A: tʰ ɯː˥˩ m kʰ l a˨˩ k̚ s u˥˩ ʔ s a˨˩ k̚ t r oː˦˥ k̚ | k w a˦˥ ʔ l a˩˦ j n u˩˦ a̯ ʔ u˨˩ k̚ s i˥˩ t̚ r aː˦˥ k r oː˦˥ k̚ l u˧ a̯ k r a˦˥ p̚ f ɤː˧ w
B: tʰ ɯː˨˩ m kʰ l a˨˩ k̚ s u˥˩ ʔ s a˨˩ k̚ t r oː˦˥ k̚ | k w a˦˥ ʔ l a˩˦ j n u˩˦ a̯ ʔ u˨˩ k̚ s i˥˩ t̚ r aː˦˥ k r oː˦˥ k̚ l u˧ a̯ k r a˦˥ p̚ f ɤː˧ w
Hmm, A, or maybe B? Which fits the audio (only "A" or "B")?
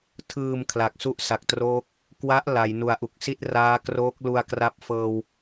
B